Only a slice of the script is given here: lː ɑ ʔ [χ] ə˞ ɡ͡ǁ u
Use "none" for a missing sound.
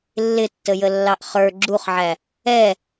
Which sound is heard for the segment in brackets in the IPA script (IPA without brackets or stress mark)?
χ